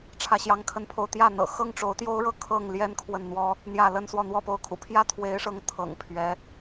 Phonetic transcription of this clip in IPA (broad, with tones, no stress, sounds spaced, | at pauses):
ʈ͡ʂʰ ä˥˩ ɕ j ɑ˥ ŋ kʰ ə˥ n pʰ o˥˧ ʊ̯ t̪ j ä˥˩ n̪ ɤ̰˨˩ x ɤ˥ ŋ ʈ͡ʂ o˧˥ ʊ̯ t̪ j o˥ ʊ̯ ɻ ɤ˥˧ kʰ ɤ˥˩ ŋ l j ɛ˥ n kʰ w ə˥˩ n n̪ w ɔ˥ | n̪ j ä˥˩ l ə˥ n s w ɔ˥˧ n̪ w ɔ˥˧ p o˥˩ ʊ̯ kʰ ṵ˨˩ pʰ j ä˥ t̪ʰ w e˧˥ ɪ̯ ʂ ɤ˧˥ ŋ t̪ʰ ɤ̰˨˩ ŋ pʰ ɥ ɛ˧˥